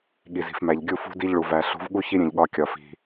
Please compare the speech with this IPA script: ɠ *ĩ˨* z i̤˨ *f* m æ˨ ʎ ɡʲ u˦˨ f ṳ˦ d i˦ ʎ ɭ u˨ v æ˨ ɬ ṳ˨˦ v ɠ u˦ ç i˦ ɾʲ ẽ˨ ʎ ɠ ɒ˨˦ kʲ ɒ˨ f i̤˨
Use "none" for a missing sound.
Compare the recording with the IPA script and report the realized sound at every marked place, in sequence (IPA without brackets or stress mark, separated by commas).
i˨, f